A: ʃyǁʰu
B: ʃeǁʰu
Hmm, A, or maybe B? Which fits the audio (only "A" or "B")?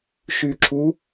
A